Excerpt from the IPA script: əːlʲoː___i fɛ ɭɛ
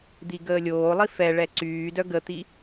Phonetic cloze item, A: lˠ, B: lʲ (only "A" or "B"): A